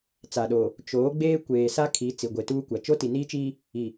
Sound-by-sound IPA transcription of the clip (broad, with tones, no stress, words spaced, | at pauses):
t͡sa˨ɗoː˨ | t͡ʃoː˨˦ɡ͡beː˦ kʷeː˨sa˦kʰi˨˦ t͡si˨ɡʷe˨tuː˦kʷa˨ t͡ʃo˦ti˨niː˦t͡ʃiː˦ | i˨